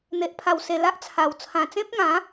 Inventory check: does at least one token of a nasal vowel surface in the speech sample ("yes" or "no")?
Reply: yes